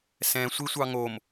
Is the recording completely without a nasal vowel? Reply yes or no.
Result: no